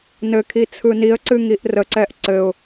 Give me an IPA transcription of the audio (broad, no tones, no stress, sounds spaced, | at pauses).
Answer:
n ɘ kʰ i t͡sʰ ɯ n i ə̯ ǀ ɨ ŋ i ʔ r ə ǀ ɛ ʔ ǀ ɘ ʊ̯